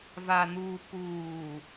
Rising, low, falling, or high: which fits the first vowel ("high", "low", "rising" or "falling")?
low